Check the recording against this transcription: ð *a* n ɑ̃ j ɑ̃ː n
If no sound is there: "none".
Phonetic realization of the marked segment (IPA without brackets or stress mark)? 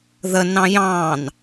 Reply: ə